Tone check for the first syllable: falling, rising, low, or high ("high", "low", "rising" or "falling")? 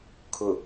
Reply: low